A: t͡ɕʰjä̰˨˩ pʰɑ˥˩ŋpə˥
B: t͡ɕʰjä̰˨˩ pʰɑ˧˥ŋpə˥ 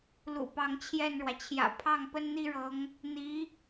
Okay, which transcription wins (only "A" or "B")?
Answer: A